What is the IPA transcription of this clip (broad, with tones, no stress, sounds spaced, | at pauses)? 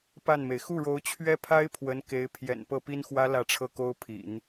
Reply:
p a˥˩ n m e˩ ɪ̯ x u˥˩ ɻ o˧˥ ʊ̯ t͡ɕʰ ɥ ɛ˥ pʰ a˥ ɪ̯ pʰ w ə˧˥ n k e˧˥ ɪ̯ pʰ j ɛ̰˨˩ n p ɤ˥˩ p i˥ n x w ä˥ l ä˥˧ ʈ͡ʂʰ ɤ˥˩ k o˥ ʊ̯ pʰ ḭ˨˩˦ n